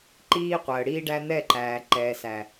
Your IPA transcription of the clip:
ǃiː˦qʷəː˨ɽiː˦ɖæ˦ n̪ɛ˦˨ǃæː˨ ǃɛː˨sæ˨

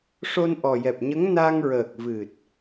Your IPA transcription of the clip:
ʂo˧nʔɔ˨˩jɛ˨˩p̚ɲə˧˥ŋ na˧ŋɹəː˨˩k̚ vɨ˨˩t̚

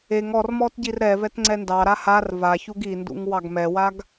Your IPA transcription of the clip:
eŋ ɔrmɔt ɟirɾɛvɛt ŋ͡ǀɛndɑɾa har vaçuɡ indṵŋ wɑɡmɛwaɡ

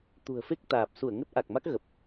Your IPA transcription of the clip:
t̪ṳ˨˩ə̯fe˦˥k̚ t̪aː˨˩p̚su˧˩ə̯ŋə˦˥t̚ ʔa˨˩k̚ma˦˥k̚ ɣə˨˩p̚

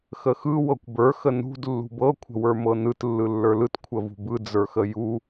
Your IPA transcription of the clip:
xəxɯ wɤkʷbə˞ xənṳd lːṳbɤ kʷʰə̤wə˞mɤnɯt lːɯlːə˞lɯt kʷʰəvṳbɯ d͡zə˞xəju

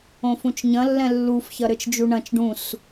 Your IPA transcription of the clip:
õfũt͡ʃɲɐ̃ lːɛ̃lːuf çɐɾɘt͡ʃd͡ʒuɳɐ̃t͡ʃ ɖũs

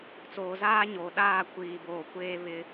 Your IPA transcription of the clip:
t͡soː˨zaː˦ɲoː˨ ɗaː˦˨ kʷiː˨boː˨kʷeː˦ βɪ˦

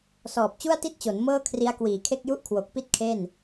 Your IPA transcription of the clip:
sɔː˨˩p̚t͡ɕu˥˩a̯ti˥˩t̚t͡ɕo˩˦n mɤː˥˩ kʰri˦˥a̯kwiː˨˩kʰe˥˩k̚ju˥˩ʔ kʰwo˨˩k̚pi˦˥t̚ kʰe˥˩n

